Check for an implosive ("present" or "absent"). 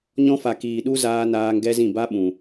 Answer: present